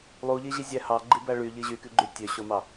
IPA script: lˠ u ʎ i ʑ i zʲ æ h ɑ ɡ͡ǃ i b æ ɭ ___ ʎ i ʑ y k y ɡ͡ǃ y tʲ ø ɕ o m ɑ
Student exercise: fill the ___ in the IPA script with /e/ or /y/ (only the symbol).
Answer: y